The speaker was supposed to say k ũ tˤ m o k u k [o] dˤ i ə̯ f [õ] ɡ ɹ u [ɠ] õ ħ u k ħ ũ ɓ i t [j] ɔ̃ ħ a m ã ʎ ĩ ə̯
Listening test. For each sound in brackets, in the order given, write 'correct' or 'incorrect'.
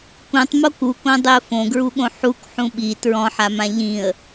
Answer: incorrect: õ, correct, correct, incorrect: ɹ

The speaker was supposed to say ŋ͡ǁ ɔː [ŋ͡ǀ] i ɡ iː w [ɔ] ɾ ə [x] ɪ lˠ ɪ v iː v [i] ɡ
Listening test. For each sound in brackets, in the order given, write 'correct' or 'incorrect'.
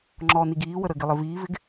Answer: incorrect: n, incorrect: ə, incorrect: ɡ, incorrect: ɪ

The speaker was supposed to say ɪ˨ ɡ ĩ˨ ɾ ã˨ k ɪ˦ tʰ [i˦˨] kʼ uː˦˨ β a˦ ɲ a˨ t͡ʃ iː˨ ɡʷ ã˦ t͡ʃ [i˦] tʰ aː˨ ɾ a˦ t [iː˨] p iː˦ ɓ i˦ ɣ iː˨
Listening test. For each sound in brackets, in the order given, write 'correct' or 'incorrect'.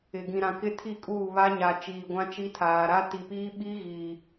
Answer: correct, correct, incorrect: i˨

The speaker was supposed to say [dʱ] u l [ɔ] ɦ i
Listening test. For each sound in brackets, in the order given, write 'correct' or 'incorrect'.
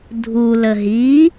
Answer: correct, incorrect: ə

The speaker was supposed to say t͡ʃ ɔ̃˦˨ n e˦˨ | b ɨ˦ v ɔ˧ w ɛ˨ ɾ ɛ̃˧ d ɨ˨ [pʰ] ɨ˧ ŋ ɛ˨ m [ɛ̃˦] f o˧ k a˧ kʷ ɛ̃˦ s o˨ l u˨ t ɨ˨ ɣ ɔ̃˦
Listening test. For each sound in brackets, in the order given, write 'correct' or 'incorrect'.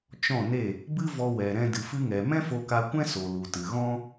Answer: incorrect: f, correct

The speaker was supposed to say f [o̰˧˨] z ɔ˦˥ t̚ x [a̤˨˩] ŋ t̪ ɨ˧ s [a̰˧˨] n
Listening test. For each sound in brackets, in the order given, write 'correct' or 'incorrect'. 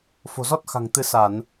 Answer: incorrect: o̤˨˩, correct, incorrect: a˧˩˨

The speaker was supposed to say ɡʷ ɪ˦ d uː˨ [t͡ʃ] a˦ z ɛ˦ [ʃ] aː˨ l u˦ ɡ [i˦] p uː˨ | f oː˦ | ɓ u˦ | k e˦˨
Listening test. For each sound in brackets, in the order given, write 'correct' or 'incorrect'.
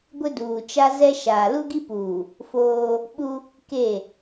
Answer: correct, correct, correct

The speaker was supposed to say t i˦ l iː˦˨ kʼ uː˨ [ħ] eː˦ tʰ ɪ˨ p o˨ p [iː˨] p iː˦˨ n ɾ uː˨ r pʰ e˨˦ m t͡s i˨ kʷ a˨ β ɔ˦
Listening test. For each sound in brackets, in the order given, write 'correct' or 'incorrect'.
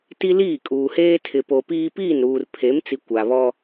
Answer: incorrect: h, incorrect: iː˦

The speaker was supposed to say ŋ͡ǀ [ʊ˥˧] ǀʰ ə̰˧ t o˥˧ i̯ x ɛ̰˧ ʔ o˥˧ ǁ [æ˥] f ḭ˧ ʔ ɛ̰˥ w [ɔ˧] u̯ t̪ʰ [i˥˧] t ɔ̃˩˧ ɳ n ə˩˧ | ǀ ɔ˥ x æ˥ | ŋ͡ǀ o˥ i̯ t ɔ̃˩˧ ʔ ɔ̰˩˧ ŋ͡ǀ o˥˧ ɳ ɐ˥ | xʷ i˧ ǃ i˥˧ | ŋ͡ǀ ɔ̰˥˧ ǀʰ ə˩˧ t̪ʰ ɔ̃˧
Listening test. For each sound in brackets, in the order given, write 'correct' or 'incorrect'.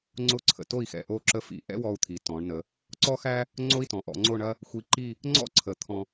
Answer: correct, incorrect: ə˥, correct, incorrect: i˩˧

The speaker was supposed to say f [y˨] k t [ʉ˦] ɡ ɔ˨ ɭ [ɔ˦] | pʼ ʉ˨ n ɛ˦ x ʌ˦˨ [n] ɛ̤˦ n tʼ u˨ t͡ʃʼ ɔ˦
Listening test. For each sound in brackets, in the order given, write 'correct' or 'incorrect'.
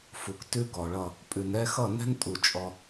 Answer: incorrect: u˨, correct, incorrect: ʌ˦, correct

